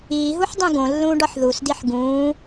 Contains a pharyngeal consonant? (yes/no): yes